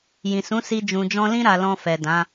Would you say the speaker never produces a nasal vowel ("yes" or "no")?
no